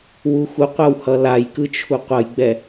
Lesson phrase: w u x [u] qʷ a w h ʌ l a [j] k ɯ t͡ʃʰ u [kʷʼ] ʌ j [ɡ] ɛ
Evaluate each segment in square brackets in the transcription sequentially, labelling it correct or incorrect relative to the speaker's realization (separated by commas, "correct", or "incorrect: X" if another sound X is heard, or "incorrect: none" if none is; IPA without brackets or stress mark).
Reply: correct, correct, incorrect: qʷ, incorrect: ɡ͡b